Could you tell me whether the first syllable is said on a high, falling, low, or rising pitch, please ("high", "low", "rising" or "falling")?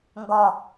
falling